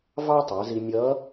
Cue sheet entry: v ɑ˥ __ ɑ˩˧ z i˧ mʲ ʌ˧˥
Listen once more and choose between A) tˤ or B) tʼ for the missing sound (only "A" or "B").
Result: A